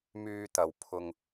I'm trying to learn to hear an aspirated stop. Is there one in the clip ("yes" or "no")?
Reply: yes